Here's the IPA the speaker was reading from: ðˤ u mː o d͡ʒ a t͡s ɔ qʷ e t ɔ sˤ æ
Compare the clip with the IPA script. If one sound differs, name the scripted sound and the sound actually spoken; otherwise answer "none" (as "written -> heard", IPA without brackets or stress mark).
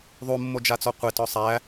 none